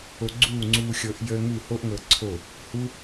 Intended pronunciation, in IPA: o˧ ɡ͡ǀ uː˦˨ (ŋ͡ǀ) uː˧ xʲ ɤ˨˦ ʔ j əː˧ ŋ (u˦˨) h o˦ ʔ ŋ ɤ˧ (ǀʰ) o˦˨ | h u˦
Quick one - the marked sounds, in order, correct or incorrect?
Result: correct, correct, correct

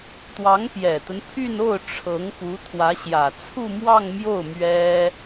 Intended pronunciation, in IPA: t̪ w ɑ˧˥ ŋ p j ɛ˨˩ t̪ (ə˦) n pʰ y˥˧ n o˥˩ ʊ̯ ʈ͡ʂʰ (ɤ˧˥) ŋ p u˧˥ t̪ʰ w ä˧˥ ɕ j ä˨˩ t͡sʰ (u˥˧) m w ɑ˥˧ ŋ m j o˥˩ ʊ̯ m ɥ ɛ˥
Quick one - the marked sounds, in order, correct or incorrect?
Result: correct, correct, correct

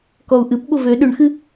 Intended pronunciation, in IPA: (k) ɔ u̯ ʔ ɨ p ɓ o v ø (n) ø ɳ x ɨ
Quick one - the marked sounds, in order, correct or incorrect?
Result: correct, incorrect

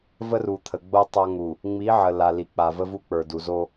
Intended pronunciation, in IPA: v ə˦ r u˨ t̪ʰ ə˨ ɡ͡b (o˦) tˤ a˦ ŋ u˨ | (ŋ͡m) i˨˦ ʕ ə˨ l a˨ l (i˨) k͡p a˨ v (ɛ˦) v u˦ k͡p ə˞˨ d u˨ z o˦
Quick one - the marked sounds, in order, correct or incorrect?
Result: correct, correct, correct, incorrect

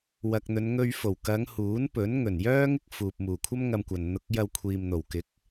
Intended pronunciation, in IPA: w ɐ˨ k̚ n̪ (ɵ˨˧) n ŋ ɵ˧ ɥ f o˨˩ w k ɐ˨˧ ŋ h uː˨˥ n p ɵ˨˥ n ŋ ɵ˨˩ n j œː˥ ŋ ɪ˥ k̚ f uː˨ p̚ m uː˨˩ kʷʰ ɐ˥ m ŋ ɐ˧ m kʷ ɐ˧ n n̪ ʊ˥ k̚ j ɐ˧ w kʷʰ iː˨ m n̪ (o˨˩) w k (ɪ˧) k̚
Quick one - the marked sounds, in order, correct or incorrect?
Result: correct, correct, incorrect

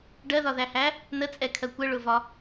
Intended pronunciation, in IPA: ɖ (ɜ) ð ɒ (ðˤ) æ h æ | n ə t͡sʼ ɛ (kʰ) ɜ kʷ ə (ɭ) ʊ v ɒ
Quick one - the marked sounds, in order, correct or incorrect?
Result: correct, incorrect, correct, correct

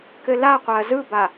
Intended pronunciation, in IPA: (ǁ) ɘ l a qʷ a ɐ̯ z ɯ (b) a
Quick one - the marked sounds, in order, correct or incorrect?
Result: incorrect, correct

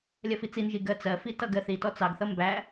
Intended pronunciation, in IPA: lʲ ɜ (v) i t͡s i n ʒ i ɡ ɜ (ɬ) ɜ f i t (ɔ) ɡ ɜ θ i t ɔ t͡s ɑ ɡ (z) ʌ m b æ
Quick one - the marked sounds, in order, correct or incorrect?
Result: incorrect, incorrect, incorrect, incorrect

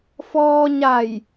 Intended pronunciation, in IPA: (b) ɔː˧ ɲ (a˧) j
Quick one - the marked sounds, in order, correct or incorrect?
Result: incorrect, incorrect

